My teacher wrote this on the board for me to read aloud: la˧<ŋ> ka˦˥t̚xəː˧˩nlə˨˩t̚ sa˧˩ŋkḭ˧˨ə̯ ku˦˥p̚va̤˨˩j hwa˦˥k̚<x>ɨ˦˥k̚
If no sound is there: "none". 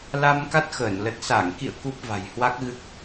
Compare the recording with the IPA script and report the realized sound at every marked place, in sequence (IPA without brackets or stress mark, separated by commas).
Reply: m, ɣ